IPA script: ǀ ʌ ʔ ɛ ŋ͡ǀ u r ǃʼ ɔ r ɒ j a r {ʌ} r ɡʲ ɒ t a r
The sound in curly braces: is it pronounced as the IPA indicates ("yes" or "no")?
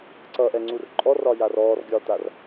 no